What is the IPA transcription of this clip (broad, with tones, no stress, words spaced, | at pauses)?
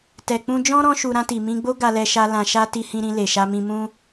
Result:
tɛ˨k͡pũ˧d͡ʒɔ̃˦ ɾɔ̃˦ʃu˧ ɾã˧ti˨mĩ˧ɡ͡bo˦ ɡa˧lɛ˧ʃa˧ lã˧ʃa˦ ti˧hĩ˧ɾĩ˧ le˨ʃa˧mĩ˧ mũ˦